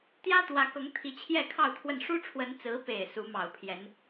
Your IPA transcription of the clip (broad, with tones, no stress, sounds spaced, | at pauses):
t̪ j ä˥ t̪ w ä˧˥ k ɤ˧˥ ŋ t̪ʰ i˧˥ t͡ɕʰ j ɛ˥˧ kʰ ɑ˥˧ ʊ̯ t̪ʰ w ə˥˩ n ʂ u˥ ʈ͡ʂʰ w ə˧˥ n t͡s ɹ̩˧˥ p e˨˩ ɪ̯ s u˧˥ m ɑ˨˩ ʊ̯ pʰ j ɛ˧˥ n